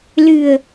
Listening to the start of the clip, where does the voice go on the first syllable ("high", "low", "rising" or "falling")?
low